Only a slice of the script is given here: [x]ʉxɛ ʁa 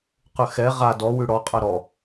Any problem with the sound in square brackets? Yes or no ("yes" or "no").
yes